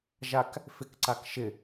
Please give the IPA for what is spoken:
ʒak | fɪkǀak ʃɪ

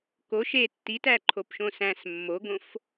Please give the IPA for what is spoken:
ko ʃe tːitæ ǃʰopʃõsæ̃s mːoɡõf

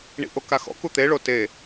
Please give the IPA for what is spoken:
ɳḭʔokaxɔ̰ kut̪e ɭote

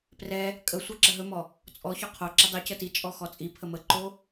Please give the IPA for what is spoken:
prɛ | kʼə sʷɛǁəɦɵmɔ | t͡sʼɔ çoqʰoǁə dˤicə tit͡ʃʼɔ xɔt͡sʼipʰə məǃo

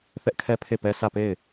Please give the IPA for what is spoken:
θɛ˦ʔkʰɛ˦ pʰe˦˨pɛ˦ sʰä˦˨pe˦˨ɪ̯

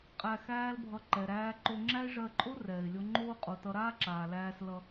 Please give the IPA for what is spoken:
qʼæ˧ xæː˦lbʱʌ˧ ǃɛ˨ɾæː˧ǃo˧ŋ͡ǁæ˦ɪ̯ ʐɜ˧ǃʼo˦ rɛː˨ɪ̯lʲo˧ ŋ͡ǃoː˧qʼo˨ tʌ˧ɾaː˦ǁaː˨ læː˧slʌ˧

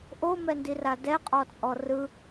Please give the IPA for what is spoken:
ʔomɛndira dɛqʼɔt͡sʼɔ rɯ

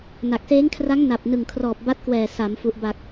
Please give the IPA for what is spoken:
na˨˩k̚seː˦˥ŋkʰra˦˥ŋ na˨˩p̚nɯ˨˩ŋkʰrɔː˨˩p̚ ba˦˥t̚kwɛː˨˩ sa˩˦mfu˨˩ʔba˨˩k̚

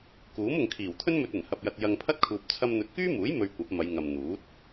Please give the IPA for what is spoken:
kuː˨˥mʊ˨ŋ kʰiː˨˩wt̪ʰɵ˥n mɵ˧t̚ɐ˨˩nhɐ˨p̚ jɐ˧t̚jɐ˧ŋ pʰɐ˥t̚kʰuː˨p̚ t͡sʰɐ˧mn̪ɵ˨t̚kyː˥muː˨˥j mɵ˧ɥkʷɐ˨˥p̚mɐ˨˧jŋɐ˨m n̪uː˨˥t̚

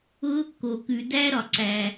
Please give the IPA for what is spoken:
ʊ˦˥ | ko˩kʉ˩dæ˦˥ɾɒ˩ ǀæ˩

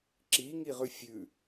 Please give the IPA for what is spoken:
ǁiŋiʁʉ fʲʉ

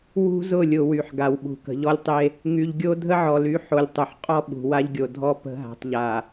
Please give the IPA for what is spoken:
wṳ˦zʊ˦˨lʲʊ˨ wy˨ħɡa˨wɓṳ˨ kə̤˨ʎɔ˦lʲtˤe˦ | ŋy˨ʎɡʲo˦ dʱə˦ʕɔ˨ly˨˦ ħo˨lʲtˤʊ˨ħ qʼɔ˦ɓṳ˨ wa˦ʎɡʲo˨dʱɔ˦ pə̤˦ ɦa̤˨tˤʎa˨

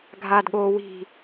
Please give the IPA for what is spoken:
ɡʱaːdɠoːwi̤

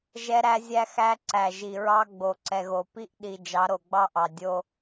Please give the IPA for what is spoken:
ʒɛ˦ ɾæ˦zʲæ˦ xæ˦ǀæ˨ʒi˨ ɹɑ˦ɡ͡bo˨ǀɛ˨ɣo˨ pi˦ʔɗi˨ d͡ʒɑ˨˦ɾo˨ɡ͡bɑ˦ʔɑ˨ dʲo˦

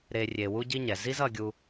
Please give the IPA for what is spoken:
ɾe˧ rʲe˧wu˦ɟi˦ɲɛ˨ zi˦z ʌ˧ɡʲu˧

